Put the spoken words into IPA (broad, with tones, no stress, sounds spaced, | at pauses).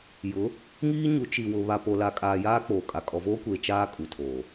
j ʊ˨˦ | ŋ iː˦ ɲ u˨˦ t͡ʃ i˨ w ʊ˨ β a˨ p o˨ l a˨ kʼ aː˨ j aː˦ k͡p oː˨ kʼ a˨ kʼ ɔ˨ v oː˦ kʷ e˨ t͡ʃ aː˦ kʼ u˨ tʰ oː˨